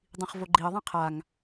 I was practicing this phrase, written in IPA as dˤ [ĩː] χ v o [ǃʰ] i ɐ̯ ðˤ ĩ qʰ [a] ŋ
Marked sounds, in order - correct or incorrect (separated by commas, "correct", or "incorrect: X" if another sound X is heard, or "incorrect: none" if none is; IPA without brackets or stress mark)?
incorrect: ĩ, incorrect: ɡ͡ǃ, correct